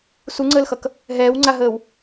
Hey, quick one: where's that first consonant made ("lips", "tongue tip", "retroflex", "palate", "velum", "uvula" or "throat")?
tongue tip